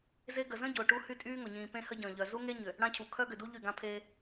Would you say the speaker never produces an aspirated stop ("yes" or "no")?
no